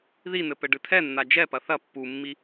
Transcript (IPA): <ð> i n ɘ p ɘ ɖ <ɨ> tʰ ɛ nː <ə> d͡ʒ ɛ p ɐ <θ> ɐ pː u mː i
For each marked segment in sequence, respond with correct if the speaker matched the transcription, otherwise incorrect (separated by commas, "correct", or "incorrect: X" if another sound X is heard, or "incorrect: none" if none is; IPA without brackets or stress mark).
correct, correct, incorrect: a, correct